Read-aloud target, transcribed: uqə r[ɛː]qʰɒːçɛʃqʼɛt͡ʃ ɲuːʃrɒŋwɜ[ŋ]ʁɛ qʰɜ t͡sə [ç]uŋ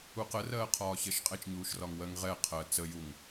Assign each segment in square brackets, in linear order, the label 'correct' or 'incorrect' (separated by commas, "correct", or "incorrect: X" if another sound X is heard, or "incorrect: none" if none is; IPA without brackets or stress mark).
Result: incorrect: ɜː, correct, incorrect: j